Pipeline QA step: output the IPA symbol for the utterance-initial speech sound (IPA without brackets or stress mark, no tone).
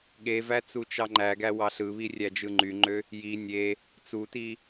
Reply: ɠ